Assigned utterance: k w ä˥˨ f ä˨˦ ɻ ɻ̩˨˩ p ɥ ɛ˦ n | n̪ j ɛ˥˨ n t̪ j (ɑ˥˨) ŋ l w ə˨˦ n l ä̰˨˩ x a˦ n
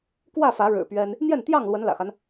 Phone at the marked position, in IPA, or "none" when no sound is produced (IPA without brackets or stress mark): ɑ˥˨